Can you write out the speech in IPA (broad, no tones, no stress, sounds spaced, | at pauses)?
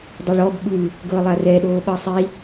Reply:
dˤ ɛ ɭ ɔ b ɓ ɯ | ɡ ɤ lˠ a r ɛ ɗ oː ɓ ɤ sˤ i